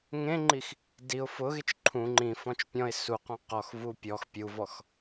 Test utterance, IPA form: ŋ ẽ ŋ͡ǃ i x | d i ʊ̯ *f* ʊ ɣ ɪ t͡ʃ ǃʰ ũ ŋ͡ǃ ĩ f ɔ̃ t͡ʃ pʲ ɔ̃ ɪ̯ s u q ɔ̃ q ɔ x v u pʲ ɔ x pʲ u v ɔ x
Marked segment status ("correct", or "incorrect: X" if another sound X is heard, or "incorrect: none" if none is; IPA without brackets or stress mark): correct